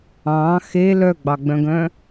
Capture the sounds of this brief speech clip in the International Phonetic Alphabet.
ɑ̃ xe lœɡ͡bɑɡ͡bœ̃ɡœ̃

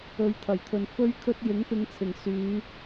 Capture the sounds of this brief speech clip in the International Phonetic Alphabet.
ɵ˧ɥt̪ʰɐ˨˩jt̪ʰɵ˨n fɵ˥ɥkʰɵ˥t̚ jɪ˨˥ŋpɪ˨˧ŋt͡sʰɪ˨˩ŋ syː˨˧

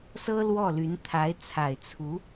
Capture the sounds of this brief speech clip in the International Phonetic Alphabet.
sɤ˥lwɔ˥˩ly˧˥n t̪ʰa˧˥ɪ̯ t͡sʰa˨˩ɪ̯t͡sʰu˧˥

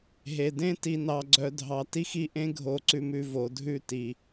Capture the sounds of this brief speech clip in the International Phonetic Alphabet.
ɦe˨dẽ˦ ti˨nɑ˨ɡ͡ǀœ˨dʱɑ˨ ti˦xi˦ʔẽ˦ ɡʱo˨ǀʉ˨m ʉ˨vo˨dʱʉ˦˨ ti˨

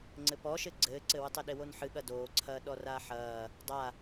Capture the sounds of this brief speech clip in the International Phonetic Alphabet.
ŋ͡ǀɘpɔʃɘ ɡ͡ǀɘːǀɘwɨtˤ ɘɗewonħɨ ɠɐdoːǀʰɐː ɗɔraːħɐː | dˤa

